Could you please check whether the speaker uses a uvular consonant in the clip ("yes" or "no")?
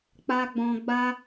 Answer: no